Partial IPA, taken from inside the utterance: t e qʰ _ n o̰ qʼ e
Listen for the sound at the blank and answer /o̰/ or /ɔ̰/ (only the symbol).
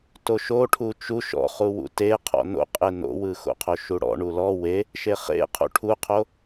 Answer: ɔ̰